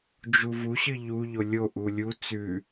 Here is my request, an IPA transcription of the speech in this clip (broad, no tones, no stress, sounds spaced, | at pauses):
d͡ʒ u v u ɕ ɨ ʎ u ʎ o lʲ o ʔ u lʲ u t͡s ʉ